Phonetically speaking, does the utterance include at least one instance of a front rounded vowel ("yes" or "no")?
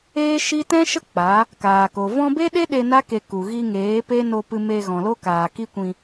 no